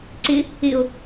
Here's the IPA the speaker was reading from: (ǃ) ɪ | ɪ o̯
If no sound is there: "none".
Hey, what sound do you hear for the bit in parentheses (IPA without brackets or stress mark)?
ǀ